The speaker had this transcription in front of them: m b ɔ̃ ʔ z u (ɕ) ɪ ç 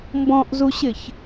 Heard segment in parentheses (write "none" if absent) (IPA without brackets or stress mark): ɕ